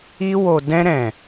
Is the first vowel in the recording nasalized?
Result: no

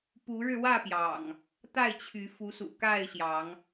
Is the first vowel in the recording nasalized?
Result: no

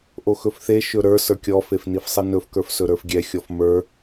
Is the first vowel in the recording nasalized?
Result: no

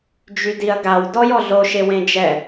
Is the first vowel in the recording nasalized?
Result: no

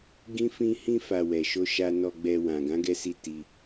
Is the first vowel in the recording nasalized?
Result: yes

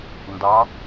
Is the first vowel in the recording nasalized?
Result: no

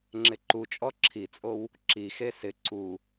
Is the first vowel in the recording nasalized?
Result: no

